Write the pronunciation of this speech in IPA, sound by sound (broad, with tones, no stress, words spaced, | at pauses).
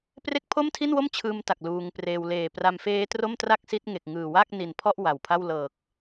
pre˦˥k̚pʰo˥˩mtʰi˥˩nwo˥˩m t͡ɕʰɯː˦˥mta˨˩k̚ luː˧ŋpreː˧w leː˨˩pra˧mfeː˦˥ tro˥˩mtra˥˩k̚si˦˥t̚ ŋe˨˩k̚ ŋɯː˨˩wa˥˩k̚ ni˨˩n pʰɔ˥˩ʔ wa˨˩wpʰa˥˩w lɤː˨˩k̚